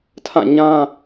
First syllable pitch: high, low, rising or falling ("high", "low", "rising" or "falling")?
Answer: falling